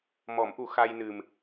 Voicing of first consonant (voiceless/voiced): voiced